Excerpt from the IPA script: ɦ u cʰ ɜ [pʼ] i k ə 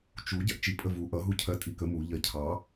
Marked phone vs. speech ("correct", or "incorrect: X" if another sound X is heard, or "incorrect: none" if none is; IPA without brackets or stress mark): incorrect: tʼ